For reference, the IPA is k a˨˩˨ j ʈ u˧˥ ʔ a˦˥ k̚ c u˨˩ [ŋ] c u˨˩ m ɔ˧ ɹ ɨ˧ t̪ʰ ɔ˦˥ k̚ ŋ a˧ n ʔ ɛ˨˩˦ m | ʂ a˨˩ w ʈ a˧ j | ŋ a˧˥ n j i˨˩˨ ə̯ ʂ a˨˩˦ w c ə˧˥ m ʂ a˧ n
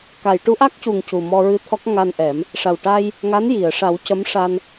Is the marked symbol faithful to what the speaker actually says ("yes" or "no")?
yes